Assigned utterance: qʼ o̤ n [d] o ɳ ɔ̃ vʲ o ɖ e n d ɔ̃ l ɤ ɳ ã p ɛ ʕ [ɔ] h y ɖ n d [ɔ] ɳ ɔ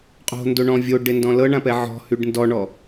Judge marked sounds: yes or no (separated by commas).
yes, no, yes